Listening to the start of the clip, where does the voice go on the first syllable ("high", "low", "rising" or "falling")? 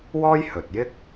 high